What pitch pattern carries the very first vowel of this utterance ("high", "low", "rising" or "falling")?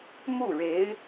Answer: falling